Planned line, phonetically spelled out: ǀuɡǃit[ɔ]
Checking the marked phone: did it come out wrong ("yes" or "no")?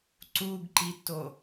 yes